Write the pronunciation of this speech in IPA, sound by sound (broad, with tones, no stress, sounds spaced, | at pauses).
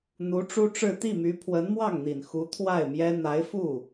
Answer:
n̪ u˧˥ ʈ͡ʂ u˥ ʈ͡ʂ ɻ̩˥˧ t̪ i˥˩ m y˧˥ pʰ w ə˧˥ n m w ɑ˥˩ ŋ n̪ i˨˩ n x u˧˥ t̪ʰ w a˥˩ ɪ̯ m j ɛ˥ n̪ a˧˥ ɪ̯ f u˥˩